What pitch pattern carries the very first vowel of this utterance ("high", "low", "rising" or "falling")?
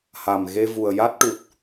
low